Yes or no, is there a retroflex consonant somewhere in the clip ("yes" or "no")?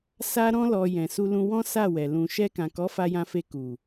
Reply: no